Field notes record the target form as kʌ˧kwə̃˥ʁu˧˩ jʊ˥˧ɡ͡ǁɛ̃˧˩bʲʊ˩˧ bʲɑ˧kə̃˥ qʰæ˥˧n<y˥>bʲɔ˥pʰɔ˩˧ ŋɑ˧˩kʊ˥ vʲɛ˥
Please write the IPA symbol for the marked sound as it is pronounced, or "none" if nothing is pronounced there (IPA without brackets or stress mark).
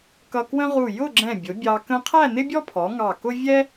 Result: ɪ˥